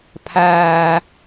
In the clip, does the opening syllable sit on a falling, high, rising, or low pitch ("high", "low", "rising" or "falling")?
high